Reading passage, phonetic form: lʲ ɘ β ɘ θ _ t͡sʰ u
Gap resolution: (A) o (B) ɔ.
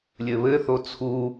A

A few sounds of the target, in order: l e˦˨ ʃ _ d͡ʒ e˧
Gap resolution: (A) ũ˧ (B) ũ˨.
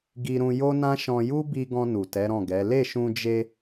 A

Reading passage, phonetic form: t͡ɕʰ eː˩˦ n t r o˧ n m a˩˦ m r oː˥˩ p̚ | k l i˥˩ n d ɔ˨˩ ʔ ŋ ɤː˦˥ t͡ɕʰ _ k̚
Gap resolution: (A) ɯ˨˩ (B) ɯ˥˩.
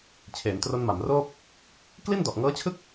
B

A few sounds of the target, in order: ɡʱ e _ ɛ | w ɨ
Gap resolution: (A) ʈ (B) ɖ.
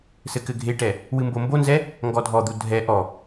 A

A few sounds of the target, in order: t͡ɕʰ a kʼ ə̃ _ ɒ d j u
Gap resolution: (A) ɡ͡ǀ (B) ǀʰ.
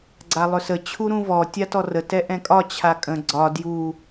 A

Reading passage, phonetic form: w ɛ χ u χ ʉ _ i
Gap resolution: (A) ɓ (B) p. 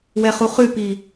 B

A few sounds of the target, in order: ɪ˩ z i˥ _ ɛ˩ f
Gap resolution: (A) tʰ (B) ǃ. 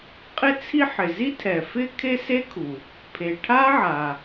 A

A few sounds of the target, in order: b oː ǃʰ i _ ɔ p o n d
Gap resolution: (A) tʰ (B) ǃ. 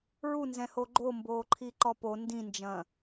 B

